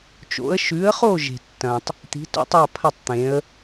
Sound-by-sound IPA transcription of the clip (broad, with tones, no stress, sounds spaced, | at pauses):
t͡ʃ o̰˩˥ ə̯ ʃ ʉ˩˥ ə̯ χ o˥˩ ʒ e̤˩ tː ɐ̃˩ tˤ | t̪ i̤˩˥ t o̰˩˥ tˤ a˥˩ pʰ ɐ˥˩ tˤ t̪ ẽ˩˥ ə̯